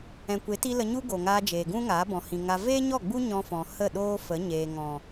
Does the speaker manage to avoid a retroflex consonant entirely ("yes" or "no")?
yes